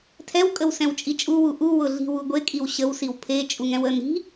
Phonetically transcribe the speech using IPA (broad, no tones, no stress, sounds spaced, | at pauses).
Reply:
tʰ ɛ w kʼ ə w s ɛ̃ w t͡ʃʼ i t͡ʃʼ u w u ʔ u w ʊ ɮ i̤ w u ɡʷ e kʼ i w ɕ ə w s i w pʰ e t͡ʃʼ u ŋ ɛ̃ w ə n i̤